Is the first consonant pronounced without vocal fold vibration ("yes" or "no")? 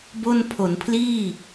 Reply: no